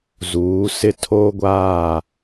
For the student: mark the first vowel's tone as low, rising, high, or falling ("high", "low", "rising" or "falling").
rising